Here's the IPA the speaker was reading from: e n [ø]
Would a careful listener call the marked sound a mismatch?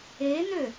no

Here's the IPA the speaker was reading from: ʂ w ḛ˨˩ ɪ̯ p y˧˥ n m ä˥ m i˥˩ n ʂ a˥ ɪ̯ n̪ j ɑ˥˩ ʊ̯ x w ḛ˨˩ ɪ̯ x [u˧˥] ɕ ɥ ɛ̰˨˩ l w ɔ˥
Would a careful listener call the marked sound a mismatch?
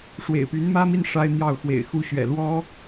no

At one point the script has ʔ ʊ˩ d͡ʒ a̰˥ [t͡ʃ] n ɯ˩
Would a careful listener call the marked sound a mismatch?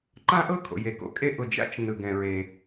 no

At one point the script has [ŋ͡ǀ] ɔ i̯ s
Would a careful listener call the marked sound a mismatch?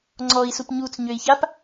no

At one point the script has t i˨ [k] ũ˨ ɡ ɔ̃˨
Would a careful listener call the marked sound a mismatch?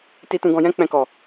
yes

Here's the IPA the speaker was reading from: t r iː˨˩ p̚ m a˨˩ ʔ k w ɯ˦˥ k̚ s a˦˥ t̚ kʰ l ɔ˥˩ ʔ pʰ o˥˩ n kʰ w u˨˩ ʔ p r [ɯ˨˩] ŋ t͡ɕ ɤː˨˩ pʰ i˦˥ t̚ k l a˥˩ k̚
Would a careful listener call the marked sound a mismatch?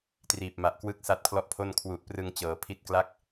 yes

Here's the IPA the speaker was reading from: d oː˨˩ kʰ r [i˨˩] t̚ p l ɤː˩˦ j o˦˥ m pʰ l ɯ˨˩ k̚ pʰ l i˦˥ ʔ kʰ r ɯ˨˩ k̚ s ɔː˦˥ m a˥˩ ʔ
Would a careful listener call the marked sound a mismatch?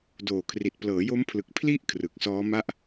no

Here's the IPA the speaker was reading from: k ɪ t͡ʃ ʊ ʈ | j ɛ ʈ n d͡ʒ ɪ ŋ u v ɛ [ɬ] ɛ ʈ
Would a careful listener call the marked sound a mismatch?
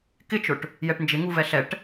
no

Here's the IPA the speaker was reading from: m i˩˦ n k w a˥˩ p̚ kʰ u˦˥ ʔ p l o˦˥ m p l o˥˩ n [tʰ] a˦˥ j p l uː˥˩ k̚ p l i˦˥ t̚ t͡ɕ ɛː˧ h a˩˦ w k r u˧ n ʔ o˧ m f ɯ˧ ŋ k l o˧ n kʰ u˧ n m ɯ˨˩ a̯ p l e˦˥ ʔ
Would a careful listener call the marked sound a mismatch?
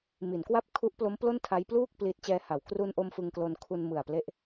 no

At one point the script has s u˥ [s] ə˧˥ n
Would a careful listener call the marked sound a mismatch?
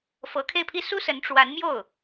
no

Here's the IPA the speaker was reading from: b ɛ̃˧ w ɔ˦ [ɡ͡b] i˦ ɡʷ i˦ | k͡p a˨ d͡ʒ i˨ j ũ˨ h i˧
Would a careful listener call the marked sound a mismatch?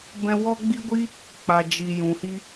no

